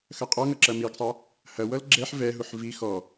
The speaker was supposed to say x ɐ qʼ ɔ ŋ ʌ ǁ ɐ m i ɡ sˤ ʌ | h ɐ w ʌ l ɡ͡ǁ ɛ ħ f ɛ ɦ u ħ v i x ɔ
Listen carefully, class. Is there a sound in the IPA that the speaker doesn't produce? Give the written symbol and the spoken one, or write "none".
f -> v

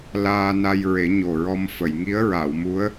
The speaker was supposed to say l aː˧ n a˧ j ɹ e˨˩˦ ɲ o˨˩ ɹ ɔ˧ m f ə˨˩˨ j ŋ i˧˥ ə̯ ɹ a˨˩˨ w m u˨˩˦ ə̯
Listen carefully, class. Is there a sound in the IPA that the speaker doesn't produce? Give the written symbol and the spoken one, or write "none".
u˨˩˦ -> u˧˥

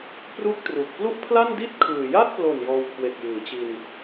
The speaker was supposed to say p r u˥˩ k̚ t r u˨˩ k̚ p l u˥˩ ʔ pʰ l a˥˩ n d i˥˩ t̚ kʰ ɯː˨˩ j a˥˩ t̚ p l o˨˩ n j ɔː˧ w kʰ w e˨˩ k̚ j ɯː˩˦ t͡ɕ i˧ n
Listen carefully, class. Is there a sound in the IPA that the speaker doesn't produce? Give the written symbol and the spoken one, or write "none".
none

